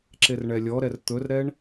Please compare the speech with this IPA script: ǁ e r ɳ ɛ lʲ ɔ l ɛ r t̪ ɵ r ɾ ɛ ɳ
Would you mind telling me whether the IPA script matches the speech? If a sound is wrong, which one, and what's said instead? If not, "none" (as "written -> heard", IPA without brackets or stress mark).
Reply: l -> ɾ